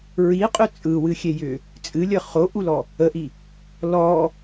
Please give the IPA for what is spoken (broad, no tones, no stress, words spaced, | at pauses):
ɹiqʼʏ t͡sʼɯwɨxʲejʏ | t͡sʼɨlʲə χoʔulɔ | əʔi | lɔ